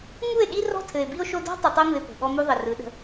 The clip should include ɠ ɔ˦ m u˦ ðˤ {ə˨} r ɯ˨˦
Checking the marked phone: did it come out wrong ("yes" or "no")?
no